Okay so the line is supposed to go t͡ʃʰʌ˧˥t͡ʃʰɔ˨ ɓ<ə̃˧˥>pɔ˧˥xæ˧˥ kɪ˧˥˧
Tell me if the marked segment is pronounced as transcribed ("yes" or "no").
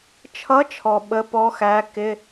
no